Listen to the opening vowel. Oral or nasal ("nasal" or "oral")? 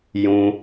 nasal